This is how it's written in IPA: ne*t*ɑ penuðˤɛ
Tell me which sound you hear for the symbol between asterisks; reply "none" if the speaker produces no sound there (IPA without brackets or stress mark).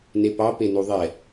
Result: p